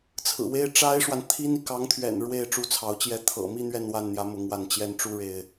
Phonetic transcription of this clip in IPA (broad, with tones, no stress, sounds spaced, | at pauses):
t͡sʰ ɹ̩˨˩ w e˥ ɪ̯ ʈ͡ʂ a˥ ɪ̯ ʂ w a˨ n t̪ʰ i˥ n i˨ k ɑ˧˥ ŋ t̪ʰ ɥ ɛ̰˨˩ n ɻ w e˥˩ ɪ̯ ʈ͡ʂ u˥ t͡sʰ ɑ˧˥ ʊ̯ t͡ɕ j ɛ˥ t̪ʰ ɤ̰˨˩ m i˥˧ n̪ ɥ ɛ˥˧ n w a˥˩ n n̪ j ä˧˥ m ʊ˧˥ ŋ w a˥˩ n t͡ɕ j ɛ˥ n ʈ͡ʂ u˥ ɻ e˥ ɪ̯